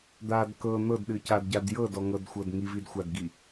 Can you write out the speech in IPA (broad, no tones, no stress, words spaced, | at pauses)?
d̪ad kɤ n̪ɤdɗɨcadɟad jɤdɔŋɤdxʷɤd ŋividxʷadɡi